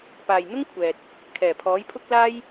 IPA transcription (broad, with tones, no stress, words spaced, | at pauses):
paː˨jn̪ʊ˥ŋkʷʰɛː˨t̚ | kʰɛː˨˩pʰɔː˨˥jpʰʊ˥k̚laː˥j